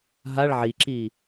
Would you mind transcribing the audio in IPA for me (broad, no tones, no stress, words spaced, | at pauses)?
ɦaɭ ʕiǁiː